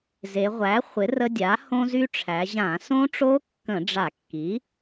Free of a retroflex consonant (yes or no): no